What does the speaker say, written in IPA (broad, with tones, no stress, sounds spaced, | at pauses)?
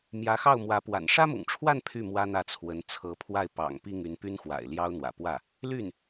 m j ä˧˥ x ɑ˥˩ ʊ̯ m w ä˧˥ p w a̰˨˩ n ʂ ä˥ m ʊ̰˨˩ ŋ ʈ͡ʂʰ w a˥˧ n pʰ y˥˩ m w ä˥ n̪ ä˥˩ t͡sʰ w ə˧˥ n t͡sʰ ɤ˧˥ pʰ w a˥˩ ɪ̯ p ɑ̰˨˩ ŋ p i˥˩ ŋ y˧˥ n p y˥ n x w a̰˨˩ ɪ̯ l j ɑ˥ ʊ̯ n̪ w ä̰˨˩ p w ä˥˩ | l y˥˩ n